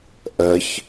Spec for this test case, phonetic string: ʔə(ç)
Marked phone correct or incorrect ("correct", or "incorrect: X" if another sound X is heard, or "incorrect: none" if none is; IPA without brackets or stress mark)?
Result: correct